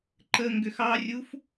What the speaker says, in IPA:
ǃə ŋɡʏxɑrʲuf

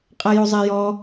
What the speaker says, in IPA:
qʼajozˤɛjɔ

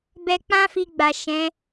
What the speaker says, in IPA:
bɛ˨k͡pã˧fi˨ ɡ͡ba˨ʃɛ̃˨˦

